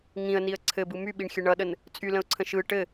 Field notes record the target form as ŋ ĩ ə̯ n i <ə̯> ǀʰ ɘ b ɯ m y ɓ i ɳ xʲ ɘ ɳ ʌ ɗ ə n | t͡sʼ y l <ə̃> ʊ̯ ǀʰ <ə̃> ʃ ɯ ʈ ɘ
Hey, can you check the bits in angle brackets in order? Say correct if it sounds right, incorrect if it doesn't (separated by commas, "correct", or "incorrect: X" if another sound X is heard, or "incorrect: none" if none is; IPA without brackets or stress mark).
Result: correct, correct, correct